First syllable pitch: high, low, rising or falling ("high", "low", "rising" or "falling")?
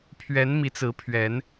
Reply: rising